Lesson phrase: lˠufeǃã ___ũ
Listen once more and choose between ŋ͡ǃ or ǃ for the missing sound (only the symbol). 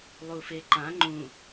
ŋ͡ǃ